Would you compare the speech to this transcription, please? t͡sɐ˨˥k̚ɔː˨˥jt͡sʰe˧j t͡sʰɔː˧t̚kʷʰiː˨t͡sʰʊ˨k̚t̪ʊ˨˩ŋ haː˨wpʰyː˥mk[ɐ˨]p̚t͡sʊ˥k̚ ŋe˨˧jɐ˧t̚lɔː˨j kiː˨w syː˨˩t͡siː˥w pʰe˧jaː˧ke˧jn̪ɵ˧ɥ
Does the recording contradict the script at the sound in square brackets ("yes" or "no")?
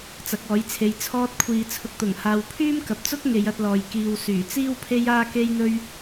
no